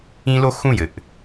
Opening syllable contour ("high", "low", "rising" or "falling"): high